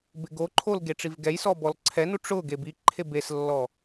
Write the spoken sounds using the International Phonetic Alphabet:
b ɪ ɡ o ǃʰ o l ɡ e ʈ͡ʂ i v ɡ ɛ j s ɔ b ɔ l ǀʰ ɛ n u ʈ͡ʂ ʊ ɡ e b i ǃʰ e b e s lː ɔ

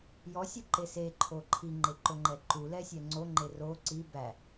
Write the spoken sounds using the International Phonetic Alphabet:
j ɔ sʲ u ǃ e s e ǃʰ o ǃʰ i ŋ͡ǃ e ǃ o ŋ͡ǃ ɛ ǃ u l ɛ sʲ ɛ ŋ͡ǀ o ŋ͡ǃ e r o ǀ i b æ

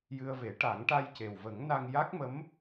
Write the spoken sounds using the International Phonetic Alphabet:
j ɨ˧ ə̯ v e˨˩˦ ʈ a˨˩˦ ŋ ʈ a˧ j c e˨˩ w v ə˨˩˦ ŋ n a˧ ŋ j a˦˥ k̚ m ə˧˥ m

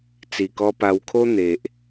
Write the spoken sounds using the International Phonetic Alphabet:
t͡s i˨˩ k ɔ˧ p a˧ w kʰ o˦ n̪ e˨ ʔ

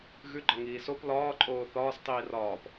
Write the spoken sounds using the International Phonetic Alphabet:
ɣ ʉ ɡ͡ǃ ɒ ŋ iː s o p l ɒː ǃʼ oː θ ɒː s tˤ iː r ɒː p

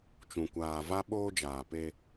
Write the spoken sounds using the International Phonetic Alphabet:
t͡ʃ ũ˨ kʷ aː˨ v a˦ ɓ oː˦ d͡ʒ aː˨ p e˦

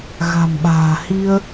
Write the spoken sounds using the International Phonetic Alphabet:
ɣ a̤˨˩ m ɓ a̤ː˨˩ h i˧ ə̯

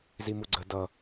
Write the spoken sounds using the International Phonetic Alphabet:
z i m u ɡ͡ǀ ə d ʌ

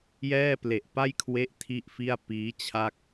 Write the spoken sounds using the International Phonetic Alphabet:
j ɛː˥˩ p l e˨˩ ʔ p a˥˩ j kʰ w e˦˥ ʔ tʰ i˥˩ ʔ f i˥˩ a̯ p iː˦˥ t͡ɕʰ a˥˩ k̚

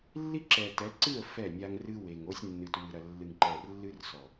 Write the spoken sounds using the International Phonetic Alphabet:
lː i˦ ǁ ɛ˨ t ɛ˨˦ ǀ ɨ˦˨ ə̯ f ɛ˦˨ nʲ a˦ ŋ r ɨ˦ w e˨ ŋ o˦ sʲ nː ɨ˨ t w ɨ˨ ɾ ɐ˨ lː ɨ˨ ŋ ǃ ɛ˨ r lː ɨ˦ r s ɔ˨

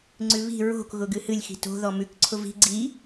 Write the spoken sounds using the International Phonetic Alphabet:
ŋ͡ǀ ʉ β i̤ ɹ o̤ k ɣ ʊ ɡ ɨ h ɨ lʲ x i̤ t o̤ ð ɔ m ʉ k ǀʰ ʊ v i̤ ɡ͡ǀ i

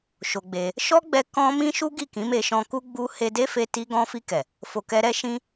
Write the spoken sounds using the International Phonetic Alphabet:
ʃ o˧ ɡ͡b e˧ | ʃ ɔ˦ ɡ͡b ɛ˧ k ɔ̃˦ m ĩ˦ ʃ u˦ ɡ i˦˨ k ĩ˨˦ m e˧ ʃ ɔ̃˧ k u˦ ɡ͡b u˦ h e˧ d e˦ f e˧ t i˧ ɡ ɔ̃˧ f i˧ k ɛ˨ | f o˧ k ɛ˦ ɾ ɛ˦ ʃ ĩ˦

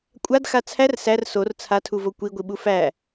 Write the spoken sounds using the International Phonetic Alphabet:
kʷʼ a d x a t͡sʰ æ r s æ r s o r t͡sʰ a tʰ u v o kʷ i ɡʷ i ɓ u f æ

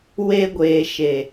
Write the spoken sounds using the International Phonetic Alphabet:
w e˧ ɡʷ eː˨ ʃ e˨

